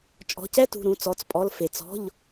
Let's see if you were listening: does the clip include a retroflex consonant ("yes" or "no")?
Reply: no